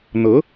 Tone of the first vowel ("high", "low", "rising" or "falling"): rising